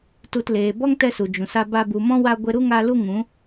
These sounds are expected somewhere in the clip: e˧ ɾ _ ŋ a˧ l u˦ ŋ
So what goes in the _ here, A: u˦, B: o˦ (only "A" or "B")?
A